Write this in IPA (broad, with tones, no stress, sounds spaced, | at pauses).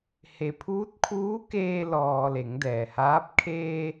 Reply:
h e˩ pʰ uː˧˥ t̚ kʰ uː˧˥ k eː˧ l ɔː˩ l e˩˧ ŋ d ɛː˩ h aː˧˥ p̚ kʰ eː˧